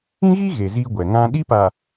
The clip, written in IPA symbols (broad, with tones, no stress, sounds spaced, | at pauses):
ĩ˦ ɣ i˦ ɣ e˨ z iː˦ ɡʷ ɛ˨ ŋ ã˦ ɗ i˦ p a˨